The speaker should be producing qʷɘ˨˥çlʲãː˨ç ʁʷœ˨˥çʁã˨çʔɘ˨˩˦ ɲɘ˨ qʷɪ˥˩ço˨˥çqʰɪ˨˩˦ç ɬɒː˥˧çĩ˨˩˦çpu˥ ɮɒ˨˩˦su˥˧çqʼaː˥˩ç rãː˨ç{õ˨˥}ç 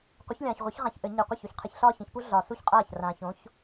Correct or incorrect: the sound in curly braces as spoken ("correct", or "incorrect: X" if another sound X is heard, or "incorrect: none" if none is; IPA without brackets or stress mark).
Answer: correct